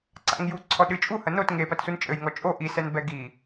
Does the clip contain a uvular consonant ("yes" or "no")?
no